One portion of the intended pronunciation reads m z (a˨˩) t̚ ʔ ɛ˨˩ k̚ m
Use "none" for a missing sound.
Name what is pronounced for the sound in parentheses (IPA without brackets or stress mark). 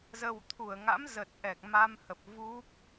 ə˨˩